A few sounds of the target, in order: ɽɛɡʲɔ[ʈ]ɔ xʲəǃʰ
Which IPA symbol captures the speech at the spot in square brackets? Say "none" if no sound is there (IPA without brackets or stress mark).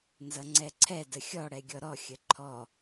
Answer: ɾ